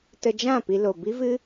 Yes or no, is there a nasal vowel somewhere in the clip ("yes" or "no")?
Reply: yes